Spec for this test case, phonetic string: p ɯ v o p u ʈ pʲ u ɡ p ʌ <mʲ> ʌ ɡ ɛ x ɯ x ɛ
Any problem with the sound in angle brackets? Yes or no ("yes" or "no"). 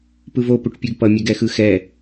no